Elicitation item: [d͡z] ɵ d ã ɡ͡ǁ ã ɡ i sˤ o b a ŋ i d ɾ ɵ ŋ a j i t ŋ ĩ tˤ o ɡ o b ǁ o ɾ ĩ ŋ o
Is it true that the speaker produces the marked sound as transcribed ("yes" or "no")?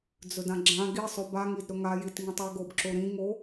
yes